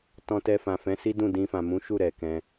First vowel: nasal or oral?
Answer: nasal